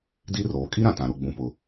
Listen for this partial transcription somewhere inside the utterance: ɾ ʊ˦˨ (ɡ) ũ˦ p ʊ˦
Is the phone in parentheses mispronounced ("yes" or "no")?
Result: yes